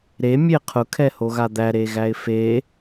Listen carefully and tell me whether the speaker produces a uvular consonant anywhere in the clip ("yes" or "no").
yes